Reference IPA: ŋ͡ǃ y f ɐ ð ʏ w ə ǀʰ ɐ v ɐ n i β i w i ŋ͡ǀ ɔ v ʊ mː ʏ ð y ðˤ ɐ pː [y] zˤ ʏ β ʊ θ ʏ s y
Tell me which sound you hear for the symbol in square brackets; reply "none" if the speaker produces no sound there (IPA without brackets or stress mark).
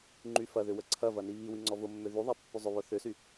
y